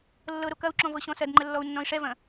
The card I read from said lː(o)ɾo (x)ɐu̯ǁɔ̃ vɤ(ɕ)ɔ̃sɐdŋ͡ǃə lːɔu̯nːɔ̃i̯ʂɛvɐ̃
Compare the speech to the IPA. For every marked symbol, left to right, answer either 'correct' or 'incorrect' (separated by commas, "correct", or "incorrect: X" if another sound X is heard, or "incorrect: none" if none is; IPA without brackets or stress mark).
incorrect: ɤ, incorrect: k, correct